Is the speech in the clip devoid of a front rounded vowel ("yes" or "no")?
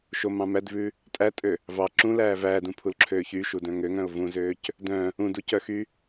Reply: no